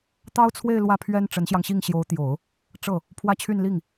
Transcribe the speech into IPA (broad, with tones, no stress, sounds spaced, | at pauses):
t̪ ɑ˥ ʊ̯ t͡sʰ w e˥˧ ɪ̯ l w ä˥˩ pʰ ɥ ɛ˥ n ʈ͡ʂ ə˧˥ n ɕ j ɑ˧ ŋ ɕ i˥˩ ŋ ɕ j o˧˥ ʊ̯ t̪ j o˨˩˦ ʊ̯ | ʈ͡ʂ ɤ˥˩ | pʰ w ä˥˧ t͡ɕʰ y˥˧ n l i˥˩ ŋ